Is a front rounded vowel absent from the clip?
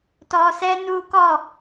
yes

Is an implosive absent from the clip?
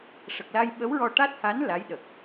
no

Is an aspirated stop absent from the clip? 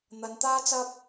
yes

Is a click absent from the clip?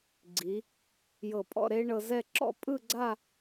no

